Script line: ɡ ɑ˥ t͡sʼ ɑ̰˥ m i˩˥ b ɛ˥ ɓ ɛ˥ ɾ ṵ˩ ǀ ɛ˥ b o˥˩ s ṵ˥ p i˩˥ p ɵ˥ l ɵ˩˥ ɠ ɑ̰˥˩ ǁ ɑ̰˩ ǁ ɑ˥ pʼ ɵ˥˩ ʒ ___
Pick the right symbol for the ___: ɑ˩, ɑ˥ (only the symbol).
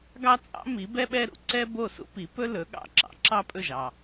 ɑ˩